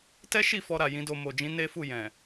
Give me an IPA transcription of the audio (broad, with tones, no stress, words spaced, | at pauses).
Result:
tɛ˦ʃi˦˨ fɔ˧ɾa˨ jĩ˨˦do˧ mo˨d͡ʒĩ˨˦ ne˦fu˦˨jɛ̃˨